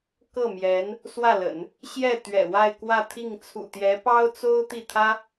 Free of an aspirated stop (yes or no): no